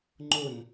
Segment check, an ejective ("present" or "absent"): absent